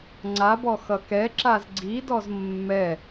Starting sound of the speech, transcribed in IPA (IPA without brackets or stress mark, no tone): ŋ͡ǀ